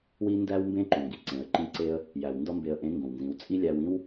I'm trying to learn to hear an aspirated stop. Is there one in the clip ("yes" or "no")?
no